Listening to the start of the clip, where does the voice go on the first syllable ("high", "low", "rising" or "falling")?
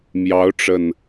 rising